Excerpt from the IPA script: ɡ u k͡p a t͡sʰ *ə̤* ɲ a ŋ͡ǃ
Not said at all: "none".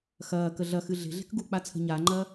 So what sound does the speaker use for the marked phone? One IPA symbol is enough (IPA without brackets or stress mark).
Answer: ə̤